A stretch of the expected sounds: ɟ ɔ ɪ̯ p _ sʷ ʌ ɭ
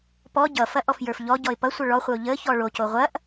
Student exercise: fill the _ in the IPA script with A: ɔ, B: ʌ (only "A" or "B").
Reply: B